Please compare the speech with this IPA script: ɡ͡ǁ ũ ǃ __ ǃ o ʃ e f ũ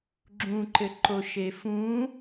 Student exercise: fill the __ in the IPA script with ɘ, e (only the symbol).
ɘ